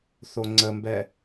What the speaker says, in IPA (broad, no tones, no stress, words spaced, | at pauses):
θoŋ͡ǀəmbɛ